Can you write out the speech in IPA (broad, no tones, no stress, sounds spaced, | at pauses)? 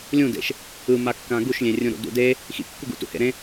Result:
lʲ ũ d ḛ ʃ | ɯ m a kː ã ɡ u ʃ lʲ ẽ rʲ ũ ɾ ṵ d ṵ d e | x ḭ kː u ɡ ṵ t ṵ h ḛ ɾ ẽ